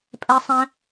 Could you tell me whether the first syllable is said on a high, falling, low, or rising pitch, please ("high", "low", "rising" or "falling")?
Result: high